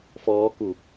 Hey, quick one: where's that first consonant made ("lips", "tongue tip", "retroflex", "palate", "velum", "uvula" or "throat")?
lips